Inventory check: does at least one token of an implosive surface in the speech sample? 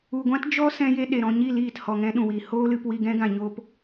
yes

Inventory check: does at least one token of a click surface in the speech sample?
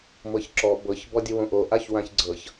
yes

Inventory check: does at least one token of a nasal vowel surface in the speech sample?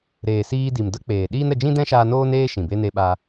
yes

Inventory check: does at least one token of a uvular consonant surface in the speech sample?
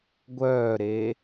no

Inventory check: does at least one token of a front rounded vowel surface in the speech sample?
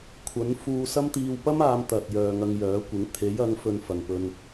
yes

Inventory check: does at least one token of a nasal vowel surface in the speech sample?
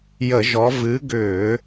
no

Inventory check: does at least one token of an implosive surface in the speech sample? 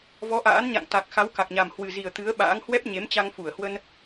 yes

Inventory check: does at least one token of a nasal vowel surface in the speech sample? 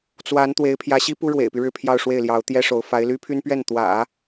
no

